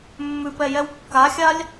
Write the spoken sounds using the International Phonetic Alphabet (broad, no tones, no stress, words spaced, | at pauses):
mːʉpɛjɛw kːaxʲalʲ